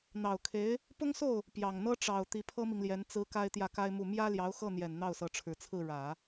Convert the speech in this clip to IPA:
n̪ɑ˨˩ʊ̯kʰe˧˥ɪ̯ | pʊ˥ŋso˥˩ʊ̯ | pjɑ˨˩ŋn̪ɤ˥ ʈ͡ʂɑ˨˩ʊ̯ t̪i˧˥pʰɤ˥mi˨ŋljɛ˧˥n t͡sɹ̩˧˥ ka˥ɪ̯t̪jä˥˩ka˥ɪ̯mu˥˩ mjä˥ljɑ˧˥ʊ̯xɤ˥˩n̪jɛ˨˩n n̪ɑ˥˩ʊ̯sɤ˧˥ʈ͡ʂʰɻ̩˨˩t͡sʰɹ̩˥˩ ɻä˨˩˦

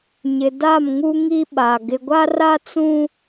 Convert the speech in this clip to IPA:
ɲɪ˨ da˦˨mŋu˦ ŋi˦ɓa˨ ɡɪ˨ɡʷa˦ra˦t͡sũ˦

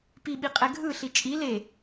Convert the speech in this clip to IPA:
piɓiqʼɛ ɡʱɯɬi t͡ʃʼi le

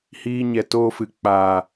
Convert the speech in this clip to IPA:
hiː˧ɲɛ˨toː˧ fɨ˨k͡paː˨

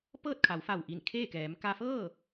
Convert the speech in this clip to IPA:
pɤː˥˨t̚kʰa˩˧wfa˧˩wʔi˧˩n kʰeː˥˨kɛː˩˧m ka˧fɤː˥˨

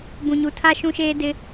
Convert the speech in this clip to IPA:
bũ˨ɲu˨ tʰa˦ ʃũ˦ʃeː˦ dɪ˦

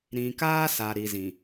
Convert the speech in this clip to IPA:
ɾĩ˨kaː˦ sa˨ ɾi˨zĩ˨

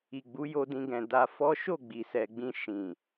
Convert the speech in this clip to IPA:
i˨ɡ͡bu˨˦ jo˧dĩ˧ɡɛ̃˨ da˧fɔ˦ ʃo˦˨ ɡ͡bi˨sɛ˨ɡ͡bĩ˧ ʃĩ˨

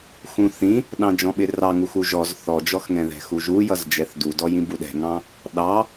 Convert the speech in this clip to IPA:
xũθĩ | ɗɑ̃d͡ʒɔ̃ɓɪrɑ ŋuxuʒɔz θɔd͡ʒɔxŋɛ̃ðɛ̤ xuʒujʌz d͡ʒɛθdudɔj ĩbuɗɛ̤ŋɑ̃ | ɗɑ

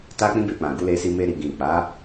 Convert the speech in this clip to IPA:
ta˦k͡pĩ˦be˧k͡pã˨ ɡu˨˦le˧si˧ me˧ɾi˨ ɡĩ˨ k͡pa˨˦

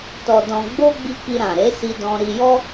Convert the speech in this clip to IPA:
tɔ˧dɔ̃˧ ɡ͡bo˦ ɡ͡bi˧ ki˧ɾã˨ɾe˨˦si˧ dɔ̃˧ ɾi˧jɔ˦

